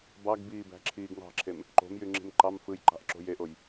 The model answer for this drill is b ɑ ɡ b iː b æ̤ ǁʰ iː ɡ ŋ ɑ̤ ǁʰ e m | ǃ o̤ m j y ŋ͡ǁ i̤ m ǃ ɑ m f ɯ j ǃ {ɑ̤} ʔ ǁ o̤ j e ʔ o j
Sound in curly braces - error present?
no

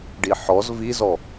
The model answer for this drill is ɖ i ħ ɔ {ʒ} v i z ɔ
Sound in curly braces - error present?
yes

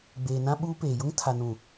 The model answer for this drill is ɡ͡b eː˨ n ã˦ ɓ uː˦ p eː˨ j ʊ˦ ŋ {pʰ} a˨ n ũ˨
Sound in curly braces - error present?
yes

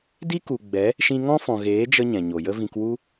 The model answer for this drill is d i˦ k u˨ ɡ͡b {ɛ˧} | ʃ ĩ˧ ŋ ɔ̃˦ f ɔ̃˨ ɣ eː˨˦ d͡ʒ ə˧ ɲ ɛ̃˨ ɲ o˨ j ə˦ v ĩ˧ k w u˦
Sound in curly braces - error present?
yes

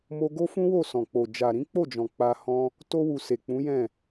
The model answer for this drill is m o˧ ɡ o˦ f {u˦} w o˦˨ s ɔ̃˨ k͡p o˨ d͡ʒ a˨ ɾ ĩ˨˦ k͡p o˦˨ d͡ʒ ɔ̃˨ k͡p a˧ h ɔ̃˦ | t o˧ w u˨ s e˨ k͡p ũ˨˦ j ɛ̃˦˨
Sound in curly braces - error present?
yes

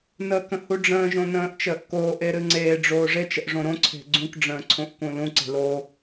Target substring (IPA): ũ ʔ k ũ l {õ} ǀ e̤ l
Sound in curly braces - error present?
yes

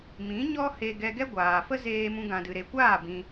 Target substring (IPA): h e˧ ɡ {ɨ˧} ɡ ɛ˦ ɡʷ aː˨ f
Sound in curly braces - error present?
yes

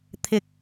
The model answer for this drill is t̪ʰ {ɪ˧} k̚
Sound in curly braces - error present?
yes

